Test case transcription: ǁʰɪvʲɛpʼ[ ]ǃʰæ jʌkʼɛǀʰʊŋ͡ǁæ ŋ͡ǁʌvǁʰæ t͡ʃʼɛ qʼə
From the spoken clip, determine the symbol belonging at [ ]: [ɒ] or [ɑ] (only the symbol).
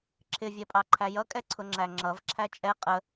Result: ɑ